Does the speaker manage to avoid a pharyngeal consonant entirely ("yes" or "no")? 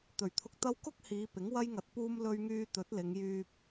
yes